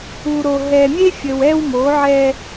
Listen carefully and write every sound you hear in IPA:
u˨ ɾ o˨ ɦ ɛ˨ mʲ e˦ fʲ ə˨ w ɛ˦ w m o˨˦ ʕ ɛ˦

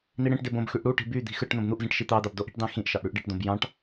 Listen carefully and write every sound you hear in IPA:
n̪ i ɽ ẽ ʈ d e b õ b x y ʔ ɽ u ʈ i̤ b y d̪ i̤ x ɯ ʈ n̪ õ b n̪ u ʔ z ĩ ʈ ʃ i t̪ ɑ d̪ ɑ b d o ʔ i̤ ʈ d ɑ̃ x ĩ ʔ ʃ ɑ ʔ ɽ y ʔ ɖ i ʈ d õ b j ɑ̃ ʈ

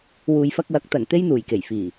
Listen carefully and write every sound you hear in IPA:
w uː˨ j f ɐ˧ k̚ w ɐ˨˥ k̚ t̪ ɐ˨˩ n t̪ e˥ j n̪ uː˨˩ j k e˨˩ j f iː˨˩

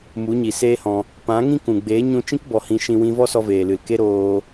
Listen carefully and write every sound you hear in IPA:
m u˨˦ ɲ i˨ s eː˦ h ɔ̃˧ | p ã˨˦ ŋ ĩ˦ k ũ˨ ɡ͡b eː˨˦ ɲ ũ˧ t͡ʃ ĩ˦ k b ɔ˨ h ĩ˧ ʃ ĩ˧ w ĩ˧ v ɔ˦ s ɔ˧ v eː˨ l ɨ˨ l k e˦ ɾ oː˧

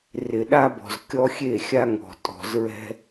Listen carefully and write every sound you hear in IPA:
r ɪ˨ ɗ a˦ b ɔ̤˨ z kʲ ɔ˦ xʲ e˦˨ xʲ a˦ ŋ ɔ̤˨ tʼ ɔ̤˨ z ɹ ɛ̤˦

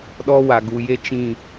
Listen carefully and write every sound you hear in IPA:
ɗ ɔ˦ w a˨ ɡ u˨ j e˦ t͡ʃ ĩ˦˨

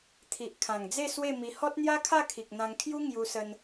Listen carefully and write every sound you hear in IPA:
t̪ʰ i˨ ʔ kʰ ã˨˩ ŋ d͡z e˥˧ s w e˥˧ m i˧ h ɔ˦ t̚ n̪ j a˦ kʰ a˥˧ kʰ i˨ k̚ n̪ ã˧ ŋ kʰ j u˦ ŋ j u˧ s ə˧ n

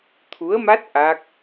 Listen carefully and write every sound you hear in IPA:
t̪ʰ u˧˥ ə̯ m a˦˥ t̚ ʔ a˦˥ k̚

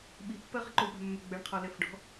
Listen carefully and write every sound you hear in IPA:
ɓ i pː ɜ ʁ i ǃ o w ɓ a̤ mː ʏ ɡ͡b ɛ ɳ qʰ ɔ l ɛ f ɖ ɔ̤

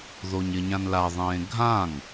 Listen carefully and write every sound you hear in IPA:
ð o ɲ ɪ ɲ ã n l a ðˤ ẽː ɡʱ ã ŋ

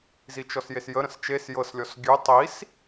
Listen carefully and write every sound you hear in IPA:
z i t͡ʃ ɔ s j e s j ə ɾ ə̃ s t͡ʃ e s j ɤ s lʲ ɔ s ɡʲ ʉ tˤ i s

